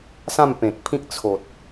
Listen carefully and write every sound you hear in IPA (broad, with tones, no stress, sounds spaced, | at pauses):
s ã˥˧ m p ẽ˨ k̚ pʰ ĩ˦ k̚ t͡sʰ o˨ t̚